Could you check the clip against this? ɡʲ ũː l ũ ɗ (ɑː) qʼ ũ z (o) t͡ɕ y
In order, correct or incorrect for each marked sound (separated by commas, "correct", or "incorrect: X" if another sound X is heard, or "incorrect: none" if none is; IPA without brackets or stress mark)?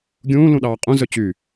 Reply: correct, incorrect: ɵ